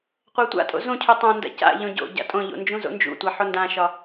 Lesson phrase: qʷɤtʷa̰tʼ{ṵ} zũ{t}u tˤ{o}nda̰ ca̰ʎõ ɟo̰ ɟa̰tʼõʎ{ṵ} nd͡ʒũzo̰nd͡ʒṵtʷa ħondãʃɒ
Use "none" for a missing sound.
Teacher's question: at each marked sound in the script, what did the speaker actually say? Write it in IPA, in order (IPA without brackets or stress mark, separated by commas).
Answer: o̰, cʰ, õ, o̰